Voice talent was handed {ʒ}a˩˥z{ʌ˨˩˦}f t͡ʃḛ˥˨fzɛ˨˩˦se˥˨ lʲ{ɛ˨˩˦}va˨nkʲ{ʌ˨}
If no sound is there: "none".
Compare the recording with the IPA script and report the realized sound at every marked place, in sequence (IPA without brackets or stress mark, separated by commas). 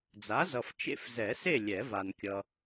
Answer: d͡z, ʌ˨, ɛ˨˩˦, ʌ˨